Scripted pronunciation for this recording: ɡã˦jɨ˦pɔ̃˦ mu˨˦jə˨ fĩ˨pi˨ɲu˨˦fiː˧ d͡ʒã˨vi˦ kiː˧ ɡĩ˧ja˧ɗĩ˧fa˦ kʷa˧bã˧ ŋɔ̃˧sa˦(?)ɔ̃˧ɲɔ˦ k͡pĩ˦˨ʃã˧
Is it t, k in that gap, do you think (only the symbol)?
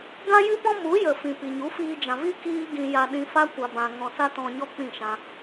t